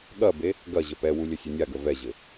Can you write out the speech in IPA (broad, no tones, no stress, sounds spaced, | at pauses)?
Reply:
ɠ ɐ b e | ɡ ɐ ʑ ə p ɛ w u lʲ ə sʲ ə nʲ a ɡ ə v ɛ ʑ ɘ